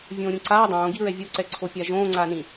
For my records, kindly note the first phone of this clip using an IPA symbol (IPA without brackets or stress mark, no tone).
vʲ